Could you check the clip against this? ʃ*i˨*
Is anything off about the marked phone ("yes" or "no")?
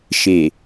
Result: yes